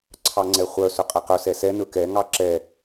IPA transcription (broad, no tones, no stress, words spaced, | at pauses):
ǀʰɑŋ͡ǀɛχʷœ sɵqʼɛqɵ sɛsɛ nɵkɛ ŋɑǁɛ